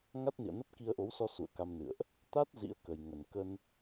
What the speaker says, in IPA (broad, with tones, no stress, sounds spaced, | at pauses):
ŋ a˦˥ t̚ n ḭ˧˨ ə̯ n ə˦˥ p̚ k i˧ ə̯ ʔ o˨˦ w s ɔ˧ s ṵ˧˨ ə̯ k a˧ m n ɨ̰˧˨ ə̯ ʔ | t̪ a˦˥ t̚ z ḭ˧˥ ə̯ k ə˨˩ j ŋ ə˨˩ n k ə˧ n